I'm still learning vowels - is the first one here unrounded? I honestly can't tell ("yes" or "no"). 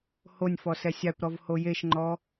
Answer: no